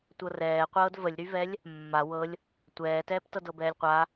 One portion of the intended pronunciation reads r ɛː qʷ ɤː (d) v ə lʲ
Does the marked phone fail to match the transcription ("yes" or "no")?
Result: no